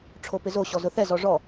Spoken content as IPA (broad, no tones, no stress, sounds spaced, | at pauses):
ʈ͡ʂʰ o p ɪ z o ɕ ɔ z ʊ θ ɛ z ɔ ʐ ɔ